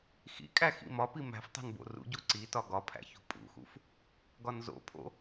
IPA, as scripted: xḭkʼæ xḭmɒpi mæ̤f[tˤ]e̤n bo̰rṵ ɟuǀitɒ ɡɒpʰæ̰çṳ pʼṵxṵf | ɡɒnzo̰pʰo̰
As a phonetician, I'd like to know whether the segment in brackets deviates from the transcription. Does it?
no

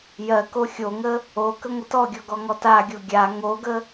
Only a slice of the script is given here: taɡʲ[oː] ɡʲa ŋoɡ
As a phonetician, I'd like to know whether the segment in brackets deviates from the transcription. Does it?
yes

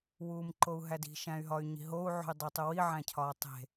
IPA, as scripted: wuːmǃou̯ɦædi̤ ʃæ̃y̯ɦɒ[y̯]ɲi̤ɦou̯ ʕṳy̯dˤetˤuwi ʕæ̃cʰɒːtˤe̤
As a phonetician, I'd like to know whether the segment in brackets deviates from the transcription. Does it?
no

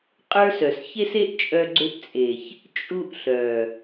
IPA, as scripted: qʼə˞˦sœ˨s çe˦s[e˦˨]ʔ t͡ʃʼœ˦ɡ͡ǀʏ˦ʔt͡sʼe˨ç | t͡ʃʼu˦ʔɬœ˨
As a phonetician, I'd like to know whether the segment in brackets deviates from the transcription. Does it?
yes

